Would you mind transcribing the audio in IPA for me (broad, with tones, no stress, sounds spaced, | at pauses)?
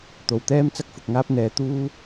t̪ o˨ w t̪ ɛː˥ m t͡s ɐ˥ k̚ f ʊ˨ k̚ ŋ aː˥ p̚ n̪ ɛː˨˧ t̪ uː˥